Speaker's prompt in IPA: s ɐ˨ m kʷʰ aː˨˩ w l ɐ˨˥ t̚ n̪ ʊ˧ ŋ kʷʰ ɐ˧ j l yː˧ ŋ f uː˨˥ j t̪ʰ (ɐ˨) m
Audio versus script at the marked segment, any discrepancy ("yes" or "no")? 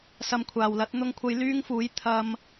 yes